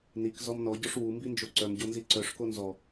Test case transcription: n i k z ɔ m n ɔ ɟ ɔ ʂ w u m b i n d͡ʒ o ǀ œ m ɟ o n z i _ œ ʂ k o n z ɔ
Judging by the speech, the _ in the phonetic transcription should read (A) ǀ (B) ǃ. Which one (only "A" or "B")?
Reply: A